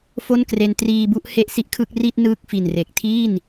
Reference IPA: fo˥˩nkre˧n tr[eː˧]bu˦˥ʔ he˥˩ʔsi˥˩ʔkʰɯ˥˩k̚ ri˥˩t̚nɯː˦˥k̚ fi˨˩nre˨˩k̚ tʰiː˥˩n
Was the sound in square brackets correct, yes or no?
no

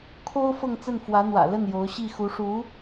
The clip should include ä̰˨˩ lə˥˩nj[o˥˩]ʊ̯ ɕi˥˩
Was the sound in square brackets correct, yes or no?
no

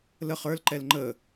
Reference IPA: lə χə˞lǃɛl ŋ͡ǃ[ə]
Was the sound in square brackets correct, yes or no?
yes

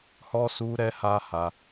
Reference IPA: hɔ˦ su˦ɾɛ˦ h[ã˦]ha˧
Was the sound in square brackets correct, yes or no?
no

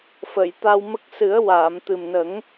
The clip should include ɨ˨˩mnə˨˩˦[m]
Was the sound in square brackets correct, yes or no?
no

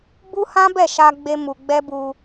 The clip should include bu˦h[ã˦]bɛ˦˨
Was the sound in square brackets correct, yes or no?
yes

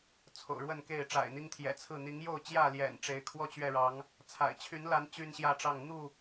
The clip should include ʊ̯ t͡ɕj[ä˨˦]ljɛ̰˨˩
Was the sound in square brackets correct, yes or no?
no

